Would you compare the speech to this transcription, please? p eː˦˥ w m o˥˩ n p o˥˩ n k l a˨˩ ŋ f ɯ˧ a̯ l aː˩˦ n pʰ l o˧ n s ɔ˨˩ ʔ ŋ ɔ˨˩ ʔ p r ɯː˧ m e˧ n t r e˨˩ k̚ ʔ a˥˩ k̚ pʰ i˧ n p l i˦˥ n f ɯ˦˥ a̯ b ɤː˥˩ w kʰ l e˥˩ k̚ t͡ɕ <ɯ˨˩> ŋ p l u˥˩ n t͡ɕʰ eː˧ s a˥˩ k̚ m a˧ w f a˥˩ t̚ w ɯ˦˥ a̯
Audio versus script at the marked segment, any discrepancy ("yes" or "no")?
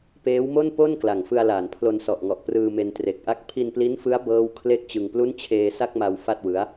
yes